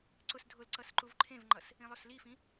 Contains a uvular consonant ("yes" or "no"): no